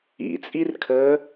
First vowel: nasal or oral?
oral